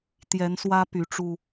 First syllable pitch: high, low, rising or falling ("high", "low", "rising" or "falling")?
rising